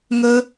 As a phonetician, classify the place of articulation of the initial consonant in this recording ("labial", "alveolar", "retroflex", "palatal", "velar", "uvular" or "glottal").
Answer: velar